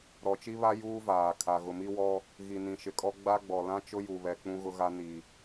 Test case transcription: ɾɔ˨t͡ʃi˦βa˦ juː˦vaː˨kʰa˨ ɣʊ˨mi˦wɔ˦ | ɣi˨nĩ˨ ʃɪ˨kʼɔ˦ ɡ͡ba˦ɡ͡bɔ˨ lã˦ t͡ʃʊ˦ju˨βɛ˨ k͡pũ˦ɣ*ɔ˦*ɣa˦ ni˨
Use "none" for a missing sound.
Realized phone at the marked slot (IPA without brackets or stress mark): ʊ˦